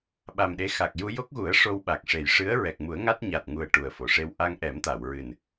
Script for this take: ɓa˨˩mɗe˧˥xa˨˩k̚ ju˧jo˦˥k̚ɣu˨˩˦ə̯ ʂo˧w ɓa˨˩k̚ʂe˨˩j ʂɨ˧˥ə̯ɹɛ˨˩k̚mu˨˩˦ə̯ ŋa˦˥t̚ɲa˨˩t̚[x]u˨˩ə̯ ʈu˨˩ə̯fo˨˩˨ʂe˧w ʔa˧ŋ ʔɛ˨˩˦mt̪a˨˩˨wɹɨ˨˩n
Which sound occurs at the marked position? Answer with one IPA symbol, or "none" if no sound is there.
ŋ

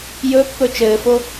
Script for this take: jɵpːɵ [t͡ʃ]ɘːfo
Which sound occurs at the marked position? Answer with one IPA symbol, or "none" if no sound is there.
t͡ʃ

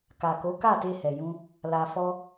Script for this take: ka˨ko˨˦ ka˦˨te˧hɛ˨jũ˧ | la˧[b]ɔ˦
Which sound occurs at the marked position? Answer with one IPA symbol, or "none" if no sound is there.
f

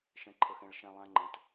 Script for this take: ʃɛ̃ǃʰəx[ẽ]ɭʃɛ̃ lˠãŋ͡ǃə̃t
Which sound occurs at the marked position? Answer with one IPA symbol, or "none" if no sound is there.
ɛ̃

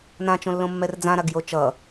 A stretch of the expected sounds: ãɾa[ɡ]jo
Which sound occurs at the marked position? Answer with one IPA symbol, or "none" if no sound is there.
ɡ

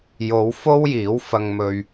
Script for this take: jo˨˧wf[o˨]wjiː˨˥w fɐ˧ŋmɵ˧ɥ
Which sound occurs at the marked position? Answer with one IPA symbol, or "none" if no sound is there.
o˥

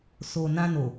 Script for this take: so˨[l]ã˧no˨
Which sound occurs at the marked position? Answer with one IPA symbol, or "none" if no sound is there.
n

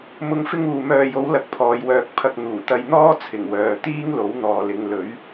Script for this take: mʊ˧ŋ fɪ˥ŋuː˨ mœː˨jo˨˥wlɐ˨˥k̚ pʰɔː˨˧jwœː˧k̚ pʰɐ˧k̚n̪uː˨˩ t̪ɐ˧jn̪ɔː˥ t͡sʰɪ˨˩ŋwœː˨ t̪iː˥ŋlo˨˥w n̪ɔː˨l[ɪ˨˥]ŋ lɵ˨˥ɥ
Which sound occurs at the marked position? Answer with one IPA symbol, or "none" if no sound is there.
ɪ˨˧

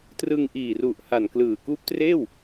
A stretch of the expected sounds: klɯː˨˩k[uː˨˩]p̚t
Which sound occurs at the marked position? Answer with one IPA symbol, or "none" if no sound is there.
uː˦˥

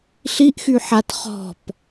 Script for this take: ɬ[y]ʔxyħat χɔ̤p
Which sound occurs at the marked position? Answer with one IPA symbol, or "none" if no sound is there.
i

